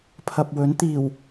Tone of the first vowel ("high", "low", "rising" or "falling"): low